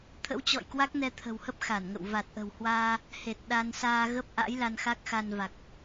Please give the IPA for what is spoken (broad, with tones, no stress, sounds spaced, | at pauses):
t̪ʰ ə̰˧˥ w t͡ɕ ɔ̰˧˨ j k w a˦˥ k̚ n ɛ˧ t̪ʰ ə̤˨˩ w h ə˦˥ p̚ x a˧˩ n ŋ ə̰˧˨ w v a˨˩ t̚ ʔ ə̤˨˩ w h w aː˧ | h e˨˩ t̚ ɗ a˧ n s aː˧ ɣ ə˦˥ p̚ ʔ a̰˧˥ j l a˧ n x a˦˥ k̚ x a˧ n v a˨˩ k̚